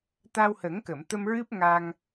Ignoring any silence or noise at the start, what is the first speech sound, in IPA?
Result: t̪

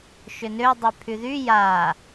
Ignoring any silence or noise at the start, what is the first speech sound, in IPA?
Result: ʃ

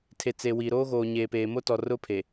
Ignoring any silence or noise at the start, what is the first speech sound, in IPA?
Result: tʰ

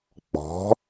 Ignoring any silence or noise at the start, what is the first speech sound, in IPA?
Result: k͡p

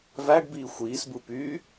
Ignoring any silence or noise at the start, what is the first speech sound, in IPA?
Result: v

